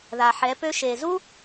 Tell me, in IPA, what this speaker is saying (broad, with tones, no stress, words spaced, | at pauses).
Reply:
ða˨ħɛ˨˦pø˦ ʃe˨zu˦